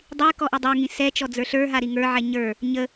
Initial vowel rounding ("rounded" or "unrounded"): unrounded